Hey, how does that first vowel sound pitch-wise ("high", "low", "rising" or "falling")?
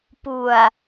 low